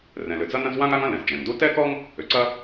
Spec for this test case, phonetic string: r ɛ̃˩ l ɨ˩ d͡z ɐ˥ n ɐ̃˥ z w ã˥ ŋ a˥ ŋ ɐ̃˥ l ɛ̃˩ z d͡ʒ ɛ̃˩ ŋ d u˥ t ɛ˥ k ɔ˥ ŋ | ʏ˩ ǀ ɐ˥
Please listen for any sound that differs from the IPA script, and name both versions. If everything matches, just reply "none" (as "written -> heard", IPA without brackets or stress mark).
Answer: ɨ˩ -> ʏ˩